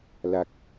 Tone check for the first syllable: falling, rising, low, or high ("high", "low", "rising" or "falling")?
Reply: high